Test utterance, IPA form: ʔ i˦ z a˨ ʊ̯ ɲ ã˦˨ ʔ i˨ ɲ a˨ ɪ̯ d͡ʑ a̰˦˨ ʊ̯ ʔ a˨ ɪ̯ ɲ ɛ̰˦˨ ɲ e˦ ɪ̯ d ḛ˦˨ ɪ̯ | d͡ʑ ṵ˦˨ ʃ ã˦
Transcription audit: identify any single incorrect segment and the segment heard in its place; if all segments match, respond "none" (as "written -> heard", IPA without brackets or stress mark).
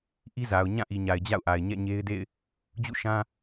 none